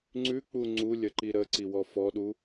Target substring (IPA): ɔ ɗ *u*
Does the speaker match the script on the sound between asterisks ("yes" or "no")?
yes